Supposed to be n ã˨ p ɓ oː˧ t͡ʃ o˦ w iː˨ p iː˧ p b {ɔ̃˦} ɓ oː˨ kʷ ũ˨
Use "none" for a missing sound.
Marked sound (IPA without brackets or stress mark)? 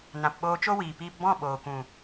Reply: ɔ̃˦˨